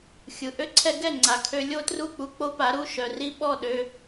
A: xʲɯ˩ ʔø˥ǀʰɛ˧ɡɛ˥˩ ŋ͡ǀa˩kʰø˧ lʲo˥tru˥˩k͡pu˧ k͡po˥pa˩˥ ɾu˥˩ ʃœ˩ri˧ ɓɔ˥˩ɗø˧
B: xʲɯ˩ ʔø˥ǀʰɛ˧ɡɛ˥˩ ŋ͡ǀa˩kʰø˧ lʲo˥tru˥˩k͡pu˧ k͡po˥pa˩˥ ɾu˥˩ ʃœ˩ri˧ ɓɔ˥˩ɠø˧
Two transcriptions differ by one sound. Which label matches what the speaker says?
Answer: A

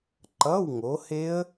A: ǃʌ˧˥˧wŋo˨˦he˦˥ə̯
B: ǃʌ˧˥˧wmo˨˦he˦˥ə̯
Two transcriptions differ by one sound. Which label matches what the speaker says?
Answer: A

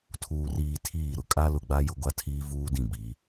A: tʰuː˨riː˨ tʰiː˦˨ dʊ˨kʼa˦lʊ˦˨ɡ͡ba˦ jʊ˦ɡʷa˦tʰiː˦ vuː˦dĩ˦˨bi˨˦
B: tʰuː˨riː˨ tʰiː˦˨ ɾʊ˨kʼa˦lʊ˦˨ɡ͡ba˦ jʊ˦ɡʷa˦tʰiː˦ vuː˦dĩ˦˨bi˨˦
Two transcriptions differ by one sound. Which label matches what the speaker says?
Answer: B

